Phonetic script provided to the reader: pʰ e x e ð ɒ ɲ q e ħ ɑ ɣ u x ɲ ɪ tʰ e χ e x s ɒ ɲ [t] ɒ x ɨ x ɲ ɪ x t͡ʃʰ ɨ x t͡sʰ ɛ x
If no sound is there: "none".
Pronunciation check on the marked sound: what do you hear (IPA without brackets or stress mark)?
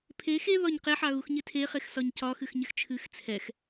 c